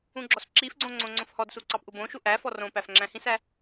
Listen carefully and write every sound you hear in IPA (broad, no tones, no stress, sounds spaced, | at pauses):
ũ ɡ͡ǁ ɔ s ǁ i f ɡ͡ǀ õ ŋ͡ǀ õ ŋ͡ǀ õ f h ɔ d s u ǀ ɑ p ʔ u b õ ʃ u ʔ æ f ɔ r õ p æ f ŋ͡ǁ æ̃ h ĩ s æ